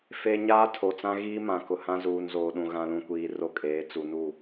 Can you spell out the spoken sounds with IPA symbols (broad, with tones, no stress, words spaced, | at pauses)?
fe˨ ɲaː˦tʰo˨t͡sã˦ ɣiː˦mã˨kʊ˨hã˦ zuː˨nzoː˨ɗũ˨ ɣã˨lũ˨kʷiː˨ ro˦kʼeː˨˦ t͡su˨nu˦˨